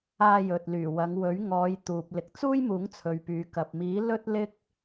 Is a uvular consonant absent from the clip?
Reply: yes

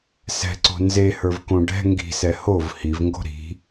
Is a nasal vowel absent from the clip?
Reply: no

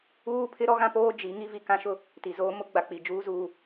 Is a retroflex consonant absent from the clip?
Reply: yes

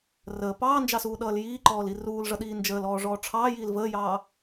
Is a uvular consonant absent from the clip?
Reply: yes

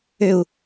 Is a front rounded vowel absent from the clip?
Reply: no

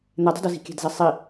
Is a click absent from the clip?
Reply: yes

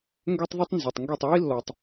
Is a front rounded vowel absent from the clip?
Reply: no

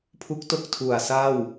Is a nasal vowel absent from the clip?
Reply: yes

